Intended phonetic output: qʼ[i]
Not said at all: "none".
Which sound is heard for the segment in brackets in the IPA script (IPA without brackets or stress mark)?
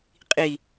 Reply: i